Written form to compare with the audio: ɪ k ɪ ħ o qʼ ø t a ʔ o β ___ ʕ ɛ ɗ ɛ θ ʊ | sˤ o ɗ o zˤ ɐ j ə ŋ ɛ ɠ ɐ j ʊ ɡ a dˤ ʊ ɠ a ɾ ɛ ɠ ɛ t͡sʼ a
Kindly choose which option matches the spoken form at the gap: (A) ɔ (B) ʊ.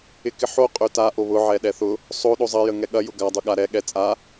B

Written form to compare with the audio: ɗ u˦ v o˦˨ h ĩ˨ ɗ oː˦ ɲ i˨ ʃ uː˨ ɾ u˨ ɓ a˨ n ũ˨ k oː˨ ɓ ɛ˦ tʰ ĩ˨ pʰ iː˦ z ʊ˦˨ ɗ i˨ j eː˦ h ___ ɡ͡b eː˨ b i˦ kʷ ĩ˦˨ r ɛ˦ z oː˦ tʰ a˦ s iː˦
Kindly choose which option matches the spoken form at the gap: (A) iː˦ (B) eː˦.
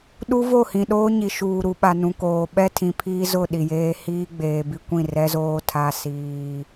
A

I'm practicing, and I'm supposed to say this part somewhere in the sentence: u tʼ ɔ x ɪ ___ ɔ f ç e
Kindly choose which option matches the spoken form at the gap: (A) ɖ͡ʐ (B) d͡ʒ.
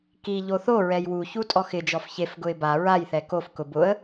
B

